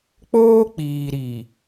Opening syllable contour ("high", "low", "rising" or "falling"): high